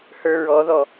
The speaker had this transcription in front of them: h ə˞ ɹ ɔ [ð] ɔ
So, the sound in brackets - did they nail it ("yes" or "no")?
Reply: yes